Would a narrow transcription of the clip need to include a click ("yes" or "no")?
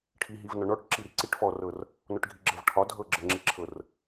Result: yes